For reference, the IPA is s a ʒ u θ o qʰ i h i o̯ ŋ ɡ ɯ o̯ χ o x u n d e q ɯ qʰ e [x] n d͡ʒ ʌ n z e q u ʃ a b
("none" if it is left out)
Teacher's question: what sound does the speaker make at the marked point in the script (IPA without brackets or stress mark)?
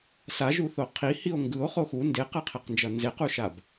q